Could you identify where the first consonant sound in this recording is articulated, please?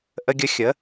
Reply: glottal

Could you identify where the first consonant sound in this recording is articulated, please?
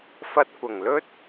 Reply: labial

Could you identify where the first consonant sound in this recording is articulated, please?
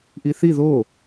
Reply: glottal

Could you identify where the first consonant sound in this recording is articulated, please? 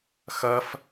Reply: velar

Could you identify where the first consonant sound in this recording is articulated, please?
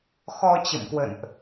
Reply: velar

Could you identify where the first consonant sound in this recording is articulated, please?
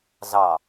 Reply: alveolar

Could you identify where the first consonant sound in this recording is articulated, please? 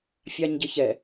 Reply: labial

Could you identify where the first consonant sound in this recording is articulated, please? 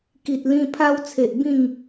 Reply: velar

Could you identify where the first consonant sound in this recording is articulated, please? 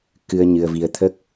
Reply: velar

